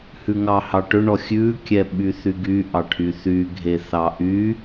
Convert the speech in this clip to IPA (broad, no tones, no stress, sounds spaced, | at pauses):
h ʉ ŋ ɑ h ɑ ʈ ɵ ɳ ɔ xʲ ʉ kʲ ɛ ɓ y θ y ɡ y ʔ ɑ ʈʰ y θ y ɡʱ e θ ɑ ʔ y